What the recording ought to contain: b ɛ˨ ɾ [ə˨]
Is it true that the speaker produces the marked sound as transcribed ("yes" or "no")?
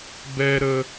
yes